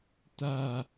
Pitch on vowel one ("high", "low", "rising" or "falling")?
low